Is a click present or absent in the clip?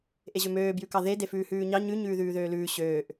absent